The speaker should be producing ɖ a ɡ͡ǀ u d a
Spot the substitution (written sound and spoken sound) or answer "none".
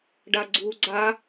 d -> ɡ͡ǀ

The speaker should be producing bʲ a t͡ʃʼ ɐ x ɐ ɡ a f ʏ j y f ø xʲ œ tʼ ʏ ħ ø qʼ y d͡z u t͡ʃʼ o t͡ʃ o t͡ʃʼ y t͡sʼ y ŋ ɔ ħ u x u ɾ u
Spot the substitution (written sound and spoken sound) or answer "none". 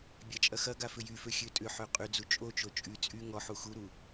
œ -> ø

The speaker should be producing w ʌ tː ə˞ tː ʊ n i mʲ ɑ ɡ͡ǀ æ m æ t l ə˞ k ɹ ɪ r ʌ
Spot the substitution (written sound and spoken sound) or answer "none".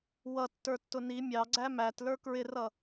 none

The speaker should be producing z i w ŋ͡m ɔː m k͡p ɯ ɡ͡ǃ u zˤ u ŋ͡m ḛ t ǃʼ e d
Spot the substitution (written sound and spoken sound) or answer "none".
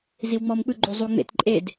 none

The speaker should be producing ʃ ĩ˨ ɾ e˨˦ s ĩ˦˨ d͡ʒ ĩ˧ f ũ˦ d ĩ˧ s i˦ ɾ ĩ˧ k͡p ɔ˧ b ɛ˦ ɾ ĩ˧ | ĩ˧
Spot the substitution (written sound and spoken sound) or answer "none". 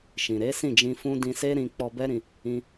i˦ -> e˦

